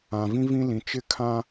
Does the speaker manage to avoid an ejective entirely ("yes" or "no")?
yes